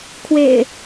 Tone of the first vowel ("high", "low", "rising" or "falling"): low